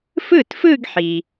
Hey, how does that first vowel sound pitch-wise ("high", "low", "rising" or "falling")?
falling